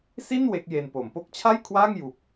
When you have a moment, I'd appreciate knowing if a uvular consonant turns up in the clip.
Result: no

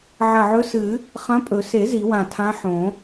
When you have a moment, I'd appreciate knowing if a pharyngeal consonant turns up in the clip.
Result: yes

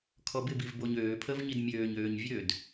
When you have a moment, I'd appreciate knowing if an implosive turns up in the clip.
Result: no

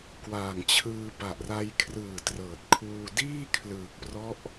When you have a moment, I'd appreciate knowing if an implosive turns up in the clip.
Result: no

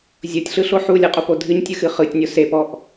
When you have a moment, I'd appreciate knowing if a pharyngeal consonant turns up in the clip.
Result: yes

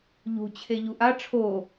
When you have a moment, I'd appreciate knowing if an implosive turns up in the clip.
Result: no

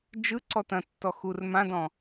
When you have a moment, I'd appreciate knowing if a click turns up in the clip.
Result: yes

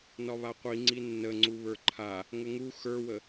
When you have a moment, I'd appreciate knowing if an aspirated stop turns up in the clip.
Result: yes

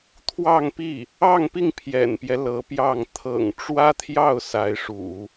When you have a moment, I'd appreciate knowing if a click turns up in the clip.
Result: no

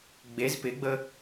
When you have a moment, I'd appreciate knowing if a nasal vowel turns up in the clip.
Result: no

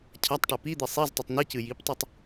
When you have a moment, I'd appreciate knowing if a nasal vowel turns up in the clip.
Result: no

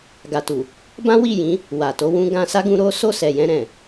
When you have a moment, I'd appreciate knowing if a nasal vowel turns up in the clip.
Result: yes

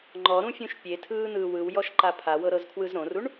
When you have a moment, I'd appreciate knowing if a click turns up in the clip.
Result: yes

